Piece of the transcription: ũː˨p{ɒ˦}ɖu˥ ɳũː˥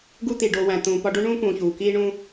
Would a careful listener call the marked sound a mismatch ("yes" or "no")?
no